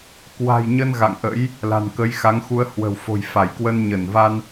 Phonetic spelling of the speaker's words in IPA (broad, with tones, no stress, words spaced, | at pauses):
kwa̤˨˩jɲə˧n ɣa̰˧˨ŋʔə̰˧˥j | la̤˨˩nkə˨˦jxa˨˦ŋxu˧ə̯ hwə̤˨˩wfo̤˨˩jfa˧˩jkwə˧n ɲə˧˩nva˧n